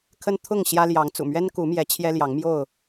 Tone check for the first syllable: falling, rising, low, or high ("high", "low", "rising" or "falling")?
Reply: high